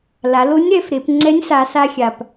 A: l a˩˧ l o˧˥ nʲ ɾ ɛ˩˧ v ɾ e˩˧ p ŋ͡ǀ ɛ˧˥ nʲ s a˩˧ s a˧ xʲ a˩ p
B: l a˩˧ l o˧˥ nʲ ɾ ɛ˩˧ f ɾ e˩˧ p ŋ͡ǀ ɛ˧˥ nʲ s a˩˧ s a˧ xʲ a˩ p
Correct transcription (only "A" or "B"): B